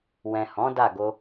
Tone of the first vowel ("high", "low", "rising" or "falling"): low